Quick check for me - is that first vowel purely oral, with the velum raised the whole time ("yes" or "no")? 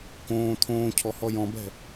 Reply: no